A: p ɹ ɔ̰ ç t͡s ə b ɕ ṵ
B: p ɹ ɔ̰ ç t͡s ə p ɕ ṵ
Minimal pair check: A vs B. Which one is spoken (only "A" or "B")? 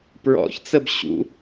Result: A